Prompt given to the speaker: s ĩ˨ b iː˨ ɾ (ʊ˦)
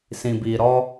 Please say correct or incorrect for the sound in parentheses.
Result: incorrect